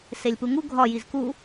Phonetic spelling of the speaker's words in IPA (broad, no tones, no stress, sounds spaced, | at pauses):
s e lʲ p u ŋ u ɡʱ ɒ j i z k u